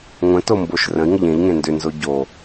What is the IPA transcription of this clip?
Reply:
ŋʷə̃tomboʃ rə̃i̯ŋəʎ ẽʎŋẽ ndʏnzo ɟo

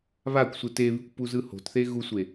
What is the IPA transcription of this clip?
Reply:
βakʷsʷɯ teβikʷ puzɯho̤tθe ɣusʷe

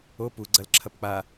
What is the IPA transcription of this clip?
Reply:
o pu ɡ͡ǀɐlǁʰɐpk͡pa

